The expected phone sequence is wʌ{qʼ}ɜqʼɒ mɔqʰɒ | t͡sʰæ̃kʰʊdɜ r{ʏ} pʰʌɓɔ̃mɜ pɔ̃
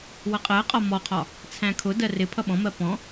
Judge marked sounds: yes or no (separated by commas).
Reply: yes, no